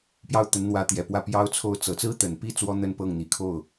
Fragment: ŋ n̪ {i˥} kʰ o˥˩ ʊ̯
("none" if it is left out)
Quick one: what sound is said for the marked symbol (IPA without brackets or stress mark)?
i˨˩